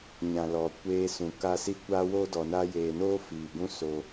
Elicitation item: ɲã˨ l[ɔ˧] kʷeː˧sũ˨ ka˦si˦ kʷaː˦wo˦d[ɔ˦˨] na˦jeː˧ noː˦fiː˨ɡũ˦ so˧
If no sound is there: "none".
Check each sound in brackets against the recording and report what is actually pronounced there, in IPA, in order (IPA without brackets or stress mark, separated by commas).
ɔ˨, ɔ˨